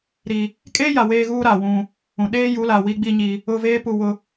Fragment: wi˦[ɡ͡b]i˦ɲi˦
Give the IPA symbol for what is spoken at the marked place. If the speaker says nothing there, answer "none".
ɡ͡b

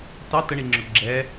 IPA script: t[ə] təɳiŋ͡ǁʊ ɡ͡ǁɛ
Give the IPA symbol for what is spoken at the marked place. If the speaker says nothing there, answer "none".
ɑ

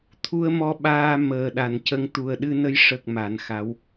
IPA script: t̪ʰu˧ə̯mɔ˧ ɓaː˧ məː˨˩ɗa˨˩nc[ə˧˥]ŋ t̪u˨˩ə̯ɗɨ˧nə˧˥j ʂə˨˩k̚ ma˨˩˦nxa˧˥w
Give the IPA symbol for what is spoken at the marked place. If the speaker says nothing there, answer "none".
ə˧˥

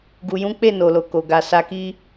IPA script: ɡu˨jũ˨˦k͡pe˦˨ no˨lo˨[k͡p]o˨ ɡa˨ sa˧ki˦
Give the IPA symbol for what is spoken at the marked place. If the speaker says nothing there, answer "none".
k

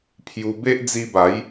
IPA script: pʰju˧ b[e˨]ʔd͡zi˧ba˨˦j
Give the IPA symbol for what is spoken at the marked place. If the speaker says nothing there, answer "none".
e˦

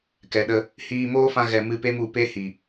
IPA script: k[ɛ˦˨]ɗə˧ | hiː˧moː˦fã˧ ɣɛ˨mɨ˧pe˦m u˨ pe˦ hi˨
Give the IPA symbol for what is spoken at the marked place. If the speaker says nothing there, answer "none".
ɛ˨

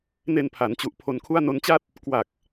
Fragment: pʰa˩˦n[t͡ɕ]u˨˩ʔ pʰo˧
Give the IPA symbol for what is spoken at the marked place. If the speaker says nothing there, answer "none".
t͡ɕ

